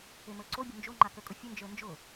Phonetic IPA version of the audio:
e m ə˞ ǀ o bʲ ʊ n d͡ʒ o ŋ͡ǃ a k ə kʼ ʊ fʲ ʊ n d͡ʒ ə˞ n d͡ʒ ʊ

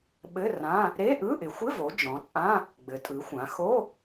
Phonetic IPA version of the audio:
ɓ ɘ˧˥˧ r ã˧˥˧ | ɾ e˧˥˧ ʔ ɯ˧˥˧ ʔ ɪ˩˧ xʷ ɪ˧˥˧ v o˩˧ d͡ʒ ɔ̃˩˧ t͡sʼ ã˧˥˧ | ɡ͡b ɘ˩˧ tʼ ɯ˩˧ xʷ ã˩˧ x o˧˥˧

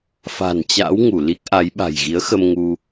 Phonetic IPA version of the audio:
f a̤˨˩ n t͡ɕ a̰˧˥ w ŋ u˧˩ l i˦˥ k̚ ʔ a˨˦ j ɓ a̤˨˩ j ɣ i˨˦ ə̯ x ə˧ m ŋ u˧

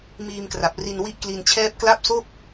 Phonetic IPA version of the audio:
m iː˧ m k r a˨˩ p̚ r i˧ n w i˥˩ ʔ k l i˧ n t͡ɕʰ ɛː˥˩ p̚ k l a˥˩ p̚ s o˥˩ k̚

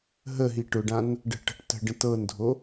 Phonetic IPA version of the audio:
ɦ ə ɦ i ʈ ʊ ɖ ã n | ɖ ə̤ ʈ ə̤ ʈ t ə̤ ɖ ə̃ t ɤ n dʱ o

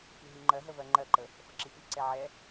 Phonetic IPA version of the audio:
f i ɦ i ŋ͡ǃ ɜ ɦ ə v ɜ ŋ͡ǃ ɜ ǃ ə | f ə ǁ i f i ǀ ɛ ʕ ɛ

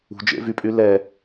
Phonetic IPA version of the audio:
ṳ d͡ʒ ḛ v y pʼ y l ɛ

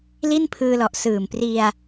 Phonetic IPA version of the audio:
l i˥˩ n pʰ ɯː˧ l ɔ˨˩ ʔ s ɯː˨˩ m p r i˧ a̯

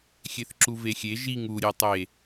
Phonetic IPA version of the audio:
xʲ e θ ǁ u v e xʲ e ʒ i ŋ u ɾʲ e tˤ e

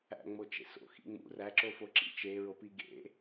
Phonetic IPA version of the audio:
æ̰ ŋ͡m o t͡ʃ ḛ s o̰ x ḭ ŋ͡m ṵ r æ ǁ o f o ǁ ḭ t͡ʃ e ɹ o p i ɡ ḛ

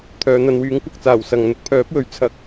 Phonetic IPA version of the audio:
t̪ʰ œː˨˧ n̪ ɐ˨˧ n w yː˨˥ ŋ kʷ ɐ˨ k̚ t͡s aː˨˩ w s ɐ˨ ŋ n̪ ʊ˨˥ k̚ pʰ œː˨˥ p̚ w ɵ˨˧ ɥ t͡sʰ ɐ˥ k̚

